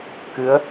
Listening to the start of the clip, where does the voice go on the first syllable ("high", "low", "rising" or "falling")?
rising